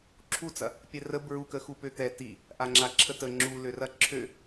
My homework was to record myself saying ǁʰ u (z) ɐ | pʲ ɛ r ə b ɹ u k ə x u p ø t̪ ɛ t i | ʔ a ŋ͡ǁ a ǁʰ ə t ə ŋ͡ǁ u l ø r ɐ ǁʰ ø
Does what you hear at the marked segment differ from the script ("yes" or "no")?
yes